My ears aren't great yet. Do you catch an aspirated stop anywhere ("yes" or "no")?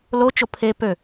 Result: yes